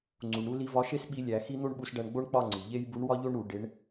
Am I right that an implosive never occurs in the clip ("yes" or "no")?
no